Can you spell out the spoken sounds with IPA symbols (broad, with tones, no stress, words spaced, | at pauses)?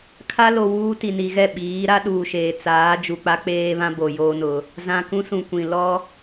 kʰa˦lo˨ wuː˦ ti˨ni˨ɣɛ˦˨ ɓiː˨˦ ɾa˦ɗuː˨ʃeː˨ t͡saː˨˦ d͡ʒu˨k͡pa˦ k͡peː˦βã˦ bo˨joː˦nʊ˨˦ | zã˨ kũ˦sũ˨ kʷĩ˨ lɔ˦